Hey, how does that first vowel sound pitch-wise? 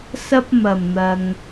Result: high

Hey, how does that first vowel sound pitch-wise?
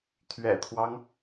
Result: low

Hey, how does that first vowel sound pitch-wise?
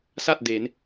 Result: falling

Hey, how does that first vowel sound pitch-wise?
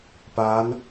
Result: rising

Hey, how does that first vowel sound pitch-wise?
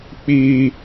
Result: low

